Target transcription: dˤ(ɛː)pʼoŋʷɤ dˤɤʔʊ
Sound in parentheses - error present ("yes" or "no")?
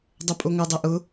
yes